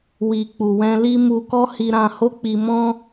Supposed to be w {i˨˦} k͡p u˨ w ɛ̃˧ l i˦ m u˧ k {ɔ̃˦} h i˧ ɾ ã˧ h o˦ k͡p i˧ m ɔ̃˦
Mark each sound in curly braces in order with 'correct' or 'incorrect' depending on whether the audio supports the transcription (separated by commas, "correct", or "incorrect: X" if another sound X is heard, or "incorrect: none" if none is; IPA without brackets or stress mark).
incorrect: i˨, incorrect: ɔ˦